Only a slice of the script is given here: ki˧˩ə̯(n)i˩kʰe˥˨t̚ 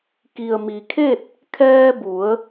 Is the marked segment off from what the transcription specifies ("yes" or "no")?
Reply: yes